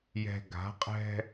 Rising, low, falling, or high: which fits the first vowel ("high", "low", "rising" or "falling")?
low